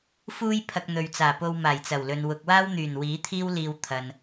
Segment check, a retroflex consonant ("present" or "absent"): absent